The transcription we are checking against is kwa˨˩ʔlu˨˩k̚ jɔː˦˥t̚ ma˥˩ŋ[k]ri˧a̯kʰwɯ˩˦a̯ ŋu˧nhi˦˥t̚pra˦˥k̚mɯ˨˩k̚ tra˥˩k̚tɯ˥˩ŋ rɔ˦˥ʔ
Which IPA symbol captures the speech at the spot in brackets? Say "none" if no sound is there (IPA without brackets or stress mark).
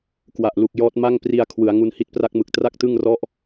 p